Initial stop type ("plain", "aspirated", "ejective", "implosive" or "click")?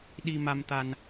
implosive